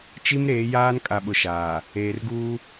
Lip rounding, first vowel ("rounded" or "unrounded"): unrounded